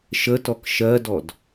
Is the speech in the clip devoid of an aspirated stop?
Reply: yes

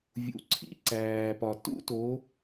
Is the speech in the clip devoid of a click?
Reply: no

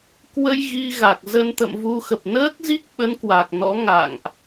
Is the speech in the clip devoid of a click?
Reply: yes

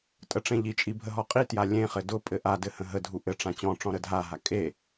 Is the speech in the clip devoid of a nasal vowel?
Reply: no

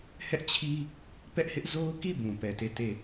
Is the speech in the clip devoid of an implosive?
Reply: yes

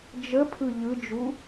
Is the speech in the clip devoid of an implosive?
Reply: yes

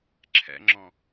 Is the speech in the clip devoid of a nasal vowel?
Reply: no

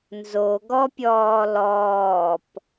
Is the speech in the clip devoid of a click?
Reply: yes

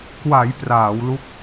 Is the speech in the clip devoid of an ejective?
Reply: yes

